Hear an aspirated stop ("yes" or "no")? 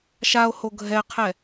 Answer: yes